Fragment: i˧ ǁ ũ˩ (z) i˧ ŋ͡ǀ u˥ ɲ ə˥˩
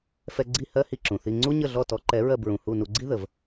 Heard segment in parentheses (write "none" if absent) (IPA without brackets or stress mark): θ